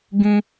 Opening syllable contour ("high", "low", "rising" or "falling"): high